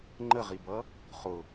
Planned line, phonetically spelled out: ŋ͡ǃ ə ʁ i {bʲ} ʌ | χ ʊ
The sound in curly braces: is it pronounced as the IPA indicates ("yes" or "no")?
no